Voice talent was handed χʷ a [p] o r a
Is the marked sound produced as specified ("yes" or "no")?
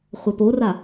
yes